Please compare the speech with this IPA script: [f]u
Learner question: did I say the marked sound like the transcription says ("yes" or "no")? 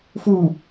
yes